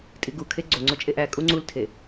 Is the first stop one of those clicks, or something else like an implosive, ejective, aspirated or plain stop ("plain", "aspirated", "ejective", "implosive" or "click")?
ejective